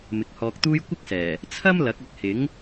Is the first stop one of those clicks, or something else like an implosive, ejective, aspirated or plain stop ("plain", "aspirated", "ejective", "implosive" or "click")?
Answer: plain